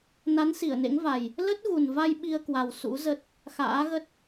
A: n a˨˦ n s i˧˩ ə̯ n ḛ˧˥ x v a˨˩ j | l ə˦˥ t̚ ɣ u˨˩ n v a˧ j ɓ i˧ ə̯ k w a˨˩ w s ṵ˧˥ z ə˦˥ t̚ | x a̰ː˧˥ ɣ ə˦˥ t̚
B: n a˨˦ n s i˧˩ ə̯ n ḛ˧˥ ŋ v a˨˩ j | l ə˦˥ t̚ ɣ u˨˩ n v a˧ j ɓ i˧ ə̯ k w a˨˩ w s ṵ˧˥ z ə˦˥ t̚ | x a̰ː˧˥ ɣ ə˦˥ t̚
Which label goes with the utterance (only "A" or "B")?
B